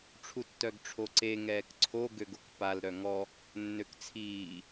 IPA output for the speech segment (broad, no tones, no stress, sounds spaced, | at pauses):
ʈ͡ʂʰ u tː œ ɡ ʈ͡ʂʰ o ǀ e ŋ ɛː k ǀʰ o ɡ ø ɡ o k p a l ɾ œ ŋ ɔ | nː ø k t͡sʰ iː